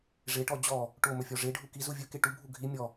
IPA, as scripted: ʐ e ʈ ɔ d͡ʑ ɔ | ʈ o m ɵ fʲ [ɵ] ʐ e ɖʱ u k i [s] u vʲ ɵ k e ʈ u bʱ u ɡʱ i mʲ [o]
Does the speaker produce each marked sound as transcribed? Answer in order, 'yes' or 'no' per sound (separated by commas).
no, no, no